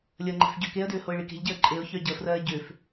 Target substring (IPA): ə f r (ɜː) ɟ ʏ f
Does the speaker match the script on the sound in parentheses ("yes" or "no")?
yes